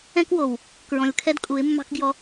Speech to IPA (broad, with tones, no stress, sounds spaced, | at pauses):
ɛ̃˦ k w o˨ w | k ɹ ɔ̃˨ lʲ kʰ ɛ˦ d kʼ u˨˦ ɪ̯ mː ɑ̤˦ k ɡ j ɔ˦